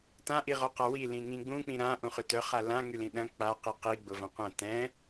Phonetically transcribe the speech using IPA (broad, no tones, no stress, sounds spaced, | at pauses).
t ã ʔ i ʁ ɔ q a w i l ĩ ŋ ĩ ɡ͡b ũ k͡p ĩ ɾ ã ʔ ũ χ ʏ t œ χ a l ã ŋ y l ĩ ɗ ɐ̃ k͡p a q i q i ɡ͡b ʊ v ɐ̃ qʷ ɐ̃ t ɛ̃